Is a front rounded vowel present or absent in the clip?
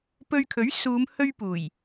absent